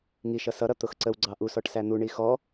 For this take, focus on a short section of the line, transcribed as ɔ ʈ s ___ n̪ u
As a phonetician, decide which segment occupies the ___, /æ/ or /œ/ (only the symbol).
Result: æ